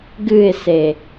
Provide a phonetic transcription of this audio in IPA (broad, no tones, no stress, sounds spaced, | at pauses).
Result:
ɡ ɨ ɪ̯ s e